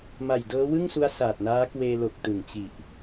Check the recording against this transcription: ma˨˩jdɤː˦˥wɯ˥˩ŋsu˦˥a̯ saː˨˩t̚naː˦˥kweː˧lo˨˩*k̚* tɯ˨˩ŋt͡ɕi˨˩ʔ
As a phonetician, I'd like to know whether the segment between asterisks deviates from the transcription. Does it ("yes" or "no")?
no